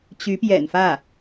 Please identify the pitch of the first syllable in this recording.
rising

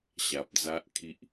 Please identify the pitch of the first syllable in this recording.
low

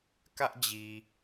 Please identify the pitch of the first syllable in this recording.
high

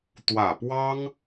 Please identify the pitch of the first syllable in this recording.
low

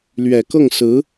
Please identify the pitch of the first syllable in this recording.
low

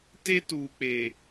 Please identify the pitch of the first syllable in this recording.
high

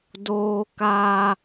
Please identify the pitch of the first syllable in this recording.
high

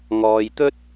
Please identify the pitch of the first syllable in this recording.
low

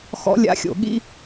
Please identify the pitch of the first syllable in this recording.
rising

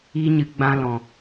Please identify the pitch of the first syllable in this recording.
high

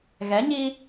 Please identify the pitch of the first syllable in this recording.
rising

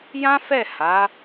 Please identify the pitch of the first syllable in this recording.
high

